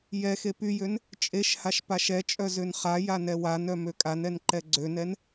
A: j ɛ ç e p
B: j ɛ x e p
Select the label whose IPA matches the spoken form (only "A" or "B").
B